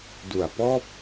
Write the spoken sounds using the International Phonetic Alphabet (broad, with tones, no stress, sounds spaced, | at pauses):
d u˨˩ a̯ p ɔː˥˩ p̚